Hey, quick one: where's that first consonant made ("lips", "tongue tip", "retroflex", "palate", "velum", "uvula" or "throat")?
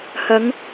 throat